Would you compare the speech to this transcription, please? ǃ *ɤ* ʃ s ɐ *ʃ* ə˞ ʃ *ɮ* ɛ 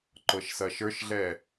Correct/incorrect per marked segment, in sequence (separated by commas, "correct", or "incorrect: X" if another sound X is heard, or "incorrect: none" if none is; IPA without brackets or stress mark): correct, correct, correct